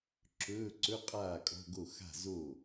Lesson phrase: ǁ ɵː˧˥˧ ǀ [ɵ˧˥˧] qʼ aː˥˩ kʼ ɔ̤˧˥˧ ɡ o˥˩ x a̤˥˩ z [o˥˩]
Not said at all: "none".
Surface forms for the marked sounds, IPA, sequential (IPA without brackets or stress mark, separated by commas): ɵ˧˥˧, o˥˩